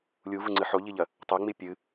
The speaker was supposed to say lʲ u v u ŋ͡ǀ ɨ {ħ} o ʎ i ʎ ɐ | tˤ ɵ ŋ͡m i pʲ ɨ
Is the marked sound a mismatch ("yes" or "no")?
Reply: no